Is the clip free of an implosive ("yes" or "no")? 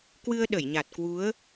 no